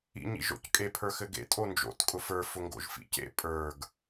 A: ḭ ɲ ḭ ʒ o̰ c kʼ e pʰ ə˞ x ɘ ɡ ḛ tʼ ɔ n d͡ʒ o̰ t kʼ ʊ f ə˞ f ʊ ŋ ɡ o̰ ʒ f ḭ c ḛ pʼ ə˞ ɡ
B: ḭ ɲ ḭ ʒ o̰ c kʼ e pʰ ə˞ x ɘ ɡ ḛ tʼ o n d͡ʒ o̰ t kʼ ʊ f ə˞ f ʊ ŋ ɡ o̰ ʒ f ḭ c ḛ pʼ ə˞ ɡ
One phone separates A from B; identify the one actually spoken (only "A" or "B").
B